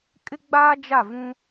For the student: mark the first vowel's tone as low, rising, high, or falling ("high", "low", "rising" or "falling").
high